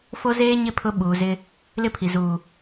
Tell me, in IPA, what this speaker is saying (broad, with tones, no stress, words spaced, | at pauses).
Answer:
fo˦zeː˦ɲɪ˦˨ pʰʊ˦ ɓuː˨zɪ˦ | lɪ˦pʰi˨ zuː˨